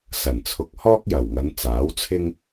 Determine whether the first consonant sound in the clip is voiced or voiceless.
voiceless